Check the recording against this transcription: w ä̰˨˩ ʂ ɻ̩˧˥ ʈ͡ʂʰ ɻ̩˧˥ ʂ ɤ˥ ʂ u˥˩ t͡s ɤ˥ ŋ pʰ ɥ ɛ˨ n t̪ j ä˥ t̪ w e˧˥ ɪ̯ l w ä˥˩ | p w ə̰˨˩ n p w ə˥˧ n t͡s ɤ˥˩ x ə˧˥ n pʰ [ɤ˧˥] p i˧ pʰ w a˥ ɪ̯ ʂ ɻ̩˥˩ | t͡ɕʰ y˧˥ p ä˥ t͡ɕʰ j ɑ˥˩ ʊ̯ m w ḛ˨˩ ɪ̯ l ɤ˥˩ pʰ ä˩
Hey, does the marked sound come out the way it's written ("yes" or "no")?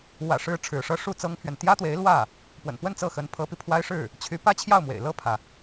yes